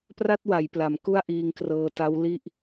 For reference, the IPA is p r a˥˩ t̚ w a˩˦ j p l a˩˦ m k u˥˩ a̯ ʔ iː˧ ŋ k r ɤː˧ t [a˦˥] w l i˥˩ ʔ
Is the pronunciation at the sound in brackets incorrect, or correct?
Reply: correct